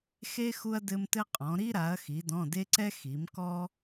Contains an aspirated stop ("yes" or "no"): no